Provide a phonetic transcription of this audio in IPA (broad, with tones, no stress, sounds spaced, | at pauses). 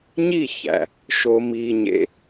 ɲ i˥˩ ç æ̰˩ | ʃ o˧ m iː˧ ɲ ḛ˧